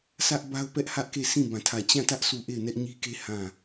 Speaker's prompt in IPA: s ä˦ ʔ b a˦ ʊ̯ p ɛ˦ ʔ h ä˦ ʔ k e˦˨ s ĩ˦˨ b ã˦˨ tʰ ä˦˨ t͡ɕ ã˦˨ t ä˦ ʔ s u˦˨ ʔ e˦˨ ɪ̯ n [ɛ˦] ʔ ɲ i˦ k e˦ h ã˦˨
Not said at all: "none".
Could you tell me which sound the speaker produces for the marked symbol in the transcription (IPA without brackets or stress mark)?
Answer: ɛ˦